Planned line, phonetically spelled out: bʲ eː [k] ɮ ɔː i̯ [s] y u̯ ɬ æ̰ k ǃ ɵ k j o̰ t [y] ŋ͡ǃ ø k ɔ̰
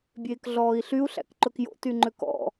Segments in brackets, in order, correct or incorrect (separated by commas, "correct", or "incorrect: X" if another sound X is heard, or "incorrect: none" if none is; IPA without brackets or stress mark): correct, incorrect: ɬ, correct